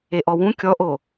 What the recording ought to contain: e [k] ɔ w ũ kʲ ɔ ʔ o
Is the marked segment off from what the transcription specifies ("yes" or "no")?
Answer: yes